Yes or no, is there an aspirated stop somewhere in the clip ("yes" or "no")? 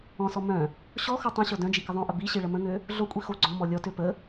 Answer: no